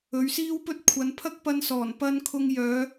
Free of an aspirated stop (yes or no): no